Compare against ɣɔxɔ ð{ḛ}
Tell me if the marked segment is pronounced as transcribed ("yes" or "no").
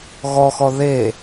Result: no